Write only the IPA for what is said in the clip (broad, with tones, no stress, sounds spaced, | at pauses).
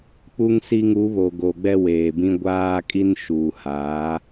k͡p u˦ ŋ s i˦ ŋ u˨˦ β o˨ ɡ o˨ ɡ͡b ɛ˦ w eː˨ b ĩ˦ ɡʷ aː˦ kʼ i˦ n ʃ uː˨ h aː˨˦